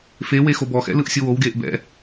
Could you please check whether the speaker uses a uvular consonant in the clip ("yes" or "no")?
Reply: no